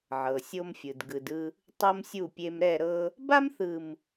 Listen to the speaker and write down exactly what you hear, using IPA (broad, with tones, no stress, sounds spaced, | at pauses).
ʕ ɤ˨ sʲ o˦ m fʲ ɯ˨ d ɡ ɯ˨ d ɯ˦ | tˤ ɤ˦ m sʲ u˦˨ pʲ e˦ m ɾ ɛ˦˨ ɾ ɤ˦ | b a˦ m θ ɯ˨ m